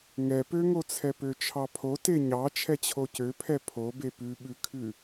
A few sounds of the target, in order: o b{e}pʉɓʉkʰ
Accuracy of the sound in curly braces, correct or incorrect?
correct